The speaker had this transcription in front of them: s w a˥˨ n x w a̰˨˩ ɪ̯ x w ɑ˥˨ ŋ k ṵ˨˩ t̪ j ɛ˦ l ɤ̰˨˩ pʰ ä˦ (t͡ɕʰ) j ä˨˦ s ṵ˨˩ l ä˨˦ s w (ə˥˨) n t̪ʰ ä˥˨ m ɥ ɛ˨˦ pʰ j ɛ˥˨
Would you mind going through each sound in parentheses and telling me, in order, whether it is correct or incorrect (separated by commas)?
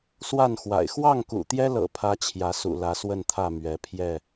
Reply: correct, correct